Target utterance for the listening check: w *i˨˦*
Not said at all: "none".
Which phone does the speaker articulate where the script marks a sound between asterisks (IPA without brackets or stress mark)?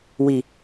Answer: i˨